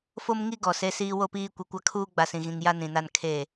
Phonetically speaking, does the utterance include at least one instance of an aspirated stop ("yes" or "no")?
yes